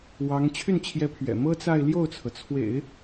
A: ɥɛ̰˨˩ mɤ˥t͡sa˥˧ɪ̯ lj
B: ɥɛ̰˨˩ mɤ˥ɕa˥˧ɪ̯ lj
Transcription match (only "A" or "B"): A